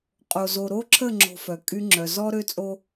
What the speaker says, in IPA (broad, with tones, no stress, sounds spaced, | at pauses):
qʼ o˨ z o˨ ɾ o˦ ǁʰ ə˦˨ ŋ͡ǁ o̤˨ f œ˨ kʼ y˦ ŋ͡ǁ œ˨ z ɔ˦ ɾ ø˦ t͡sʼ o˦